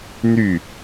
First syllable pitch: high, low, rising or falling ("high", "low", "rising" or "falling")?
falling